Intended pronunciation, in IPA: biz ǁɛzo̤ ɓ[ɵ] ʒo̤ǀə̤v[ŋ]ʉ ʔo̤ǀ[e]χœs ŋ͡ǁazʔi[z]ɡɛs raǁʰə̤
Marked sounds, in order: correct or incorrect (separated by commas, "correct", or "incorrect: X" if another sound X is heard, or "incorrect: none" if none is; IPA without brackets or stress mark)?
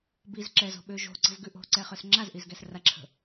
incorrect: ø, incorrect: ɡ, incorrect: ɛ, correct